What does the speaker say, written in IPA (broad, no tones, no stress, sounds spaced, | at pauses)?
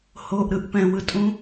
h o ʔ ɾ ɯ ʔ p ɛ̃ w ɯ tʼ ũ